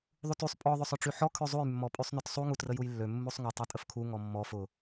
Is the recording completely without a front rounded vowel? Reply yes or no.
no